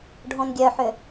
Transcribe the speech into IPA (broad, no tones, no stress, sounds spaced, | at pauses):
ɖʱ õ n ɡʲ œ ħ ʏ